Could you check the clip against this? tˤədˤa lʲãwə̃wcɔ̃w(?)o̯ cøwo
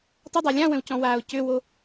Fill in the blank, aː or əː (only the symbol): aː